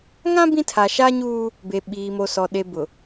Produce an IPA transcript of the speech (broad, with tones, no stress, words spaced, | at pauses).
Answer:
ŋã˦ bĩ˦ tʰa˨ʃa˦ɲuː˦ | be˨ɓiː˨mo˨sɔ˨ ɗe˨bʊ˨